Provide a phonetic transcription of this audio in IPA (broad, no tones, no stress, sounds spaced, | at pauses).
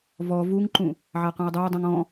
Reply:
v ɔ v u ŋ ǃ ũ | ʕ a q œ̃ ɪ̯ dˤ œ ə̯ dˤ ũ ŋ ɔ̃